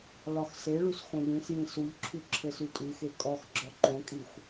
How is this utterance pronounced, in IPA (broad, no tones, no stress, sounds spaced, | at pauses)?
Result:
l ɒ x s e ɭ u s x õ ʎ ĩ s j ĩ s u ʎ ǁʰ ʉ ǁʰ ɘ s ʉ tʼ ʉ x e kʼ ɔ x ɡ͡ǁ ɔ ǃ õ kʼ i xʷ